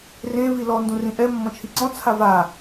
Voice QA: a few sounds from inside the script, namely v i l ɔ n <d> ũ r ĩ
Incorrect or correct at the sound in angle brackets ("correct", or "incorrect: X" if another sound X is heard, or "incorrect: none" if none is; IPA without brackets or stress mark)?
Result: correct